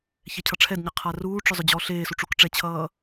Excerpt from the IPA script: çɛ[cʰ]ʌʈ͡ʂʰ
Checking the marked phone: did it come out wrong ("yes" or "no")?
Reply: no